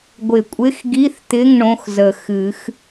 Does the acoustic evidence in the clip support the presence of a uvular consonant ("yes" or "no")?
no